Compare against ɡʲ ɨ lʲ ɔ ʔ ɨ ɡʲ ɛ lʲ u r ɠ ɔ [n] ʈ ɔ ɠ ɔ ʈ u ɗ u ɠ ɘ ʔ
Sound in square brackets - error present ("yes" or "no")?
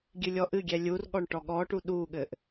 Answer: yes